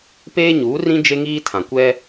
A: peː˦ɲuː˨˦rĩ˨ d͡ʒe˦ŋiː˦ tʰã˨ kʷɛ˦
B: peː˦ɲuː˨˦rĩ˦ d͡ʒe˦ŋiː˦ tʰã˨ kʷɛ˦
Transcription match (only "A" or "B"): B